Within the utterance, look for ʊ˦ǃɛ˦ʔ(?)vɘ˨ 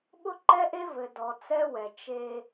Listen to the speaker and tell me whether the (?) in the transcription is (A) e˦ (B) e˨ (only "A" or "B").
A